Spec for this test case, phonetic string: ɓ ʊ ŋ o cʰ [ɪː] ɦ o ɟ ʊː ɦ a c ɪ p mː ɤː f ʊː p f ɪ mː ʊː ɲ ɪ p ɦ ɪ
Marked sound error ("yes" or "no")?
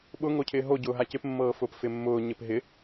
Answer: no